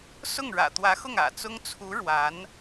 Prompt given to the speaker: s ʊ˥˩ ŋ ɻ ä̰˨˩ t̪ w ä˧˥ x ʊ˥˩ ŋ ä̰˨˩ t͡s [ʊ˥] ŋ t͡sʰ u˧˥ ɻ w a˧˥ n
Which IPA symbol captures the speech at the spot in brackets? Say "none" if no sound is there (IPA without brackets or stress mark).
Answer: ʊ˥